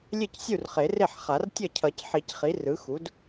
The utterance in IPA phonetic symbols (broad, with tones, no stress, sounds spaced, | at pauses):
lʲ e˥˩ c sʲ u˥˩ r χ e˨˩˦ r e˥˩ ħ χ a˨˩˦ r tʲ ʌ˥˩ cʰ ʌ˨˩˦ c ħ i˨˩˦ c χ i˩˥ r ɯ˩˥ x u˩˥ d